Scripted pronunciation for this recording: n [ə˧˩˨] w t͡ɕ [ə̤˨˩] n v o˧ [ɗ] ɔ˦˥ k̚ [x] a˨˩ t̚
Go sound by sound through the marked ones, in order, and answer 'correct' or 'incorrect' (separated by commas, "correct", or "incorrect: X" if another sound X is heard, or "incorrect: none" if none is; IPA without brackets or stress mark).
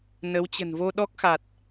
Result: incorrect: ə˨˦, correct, correct, correct